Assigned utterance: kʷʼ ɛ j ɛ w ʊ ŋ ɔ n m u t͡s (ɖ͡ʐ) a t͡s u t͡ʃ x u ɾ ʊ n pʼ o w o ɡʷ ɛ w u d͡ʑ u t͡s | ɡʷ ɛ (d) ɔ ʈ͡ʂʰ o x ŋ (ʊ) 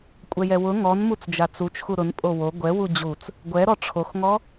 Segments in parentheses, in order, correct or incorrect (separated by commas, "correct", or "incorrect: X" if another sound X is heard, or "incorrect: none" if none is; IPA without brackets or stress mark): incorrect: d͡ʒ, incorrect: ɾ, incorrect: ɔ